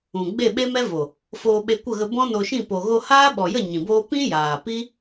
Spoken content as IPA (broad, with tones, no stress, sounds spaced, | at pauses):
ũ˨ ɡ͡b e˦˨ ɓ e˦ m ɛ˦ v o˨ | f oː˧ ɓ e˧ kʷ ə˦˨ ɣ ə˧ b ɔ̃˦ n o˧ ʃ ĩ˦˨ p o˨ ɣ o˧ h aː˦ ɓ ɔ˨ j ə˦˨ ɲ ĩ˨ b oː˦ p ĩ˦ j aː˨ p i˦